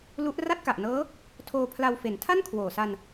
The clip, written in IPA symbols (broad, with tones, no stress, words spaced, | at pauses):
lu˦˥ʔ ra˥˩t̚ka˨˩ʔnɤː˦˥ | tʰoː˧pʰla˧wfe˩˦n tʰa˥˩nkʰwoː˨˩sa˧n